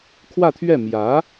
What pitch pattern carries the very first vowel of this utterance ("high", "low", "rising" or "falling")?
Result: falling